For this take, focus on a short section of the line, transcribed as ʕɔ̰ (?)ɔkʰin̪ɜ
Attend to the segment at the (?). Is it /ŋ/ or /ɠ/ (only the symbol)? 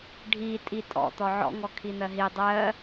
ŋ